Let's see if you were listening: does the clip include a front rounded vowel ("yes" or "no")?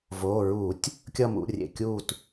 no